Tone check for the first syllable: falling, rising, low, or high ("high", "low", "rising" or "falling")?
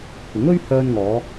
rising